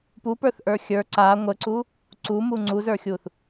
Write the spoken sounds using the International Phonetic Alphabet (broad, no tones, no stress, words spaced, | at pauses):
pupə˞θʔə˞ xʲə˞ ǀa ŋʷəǀu | ǀumu ŋ͡ǀuzə˞xʲuθ